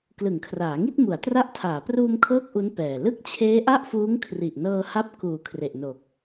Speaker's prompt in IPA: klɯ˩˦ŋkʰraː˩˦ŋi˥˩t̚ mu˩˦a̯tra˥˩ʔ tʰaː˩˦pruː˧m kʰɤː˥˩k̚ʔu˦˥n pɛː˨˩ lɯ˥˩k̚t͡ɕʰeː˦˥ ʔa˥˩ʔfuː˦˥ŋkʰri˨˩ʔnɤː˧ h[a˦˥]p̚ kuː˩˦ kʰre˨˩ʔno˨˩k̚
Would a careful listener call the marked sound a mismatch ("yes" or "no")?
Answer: no